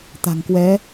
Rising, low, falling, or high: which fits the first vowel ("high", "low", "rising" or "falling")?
low